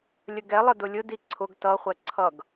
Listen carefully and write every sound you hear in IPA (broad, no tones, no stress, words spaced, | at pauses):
lʲəɡɛlˠə dʊlʲʊdi ǀʰʊɡ tʌχʷɛ ǀʰʌɡ